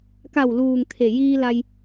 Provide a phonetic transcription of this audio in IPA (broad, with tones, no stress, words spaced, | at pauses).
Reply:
ka˧˩wluː˩ŋt̪ʰe˩ jiː˧ la˧j